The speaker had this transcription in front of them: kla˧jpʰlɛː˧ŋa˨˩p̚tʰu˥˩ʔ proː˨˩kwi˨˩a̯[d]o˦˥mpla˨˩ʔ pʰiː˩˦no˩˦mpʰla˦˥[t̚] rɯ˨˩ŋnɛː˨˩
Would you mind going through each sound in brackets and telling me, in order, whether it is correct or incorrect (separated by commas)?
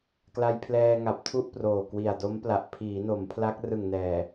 correct, incorrect